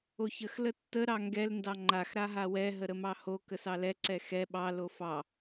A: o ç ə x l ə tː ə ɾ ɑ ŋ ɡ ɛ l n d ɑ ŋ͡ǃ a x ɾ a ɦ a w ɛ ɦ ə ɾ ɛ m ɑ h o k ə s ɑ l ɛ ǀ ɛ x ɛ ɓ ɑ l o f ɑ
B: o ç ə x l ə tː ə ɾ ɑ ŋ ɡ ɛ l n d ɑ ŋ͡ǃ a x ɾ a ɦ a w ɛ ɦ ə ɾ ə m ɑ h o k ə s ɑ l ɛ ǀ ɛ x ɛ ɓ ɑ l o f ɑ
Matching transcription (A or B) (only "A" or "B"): B